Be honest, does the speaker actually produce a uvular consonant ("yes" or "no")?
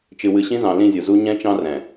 no